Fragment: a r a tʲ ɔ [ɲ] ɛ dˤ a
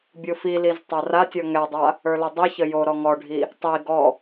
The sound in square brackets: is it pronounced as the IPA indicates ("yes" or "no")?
no